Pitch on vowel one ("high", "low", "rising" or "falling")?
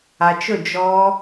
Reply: low